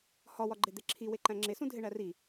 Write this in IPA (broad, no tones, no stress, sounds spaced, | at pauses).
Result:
h ɒ w ɒ ɡ͡ǃ e d̪ e ǁʰ i w e ǃ æ̃ ŋ͡ǁ e s ũ dʱ e ɳ æ r i